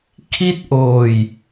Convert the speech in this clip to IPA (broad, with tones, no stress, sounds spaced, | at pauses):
kʰ i˥˩ t̚ ʔ oː˨˩ j